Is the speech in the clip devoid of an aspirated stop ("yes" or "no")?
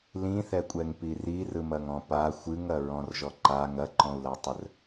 yes